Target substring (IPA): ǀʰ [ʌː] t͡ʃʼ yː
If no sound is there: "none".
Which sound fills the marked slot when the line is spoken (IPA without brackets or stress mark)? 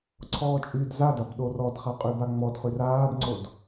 ɔː